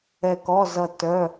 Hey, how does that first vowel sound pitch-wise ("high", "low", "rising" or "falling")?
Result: falling